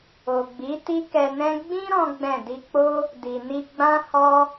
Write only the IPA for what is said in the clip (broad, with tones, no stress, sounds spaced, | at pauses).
o˨ ɡ͡b i˨˦ t i˦ k ɛ˧ n ɛ̃˦ ɡ͡b ĩ˦ ɾ ɔ̃˦ ɡ͡b ɛ̃˦˨ d i˧ k͡p o˦ | d i˨ n i˧ ɡ͡b ã˦ h ɔ˦